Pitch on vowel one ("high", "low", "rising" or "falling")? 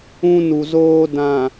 high